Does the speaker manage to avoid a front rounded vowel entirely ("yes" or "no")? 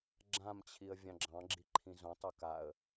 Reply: yes